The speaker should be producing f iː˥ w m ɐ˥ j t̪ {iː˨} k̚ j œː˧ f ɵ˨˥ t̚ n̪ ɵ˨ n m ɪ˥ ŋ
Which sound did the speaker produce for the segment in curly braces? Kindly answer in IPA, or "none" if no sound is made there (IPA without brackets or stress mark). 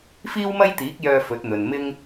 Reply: iː˨˥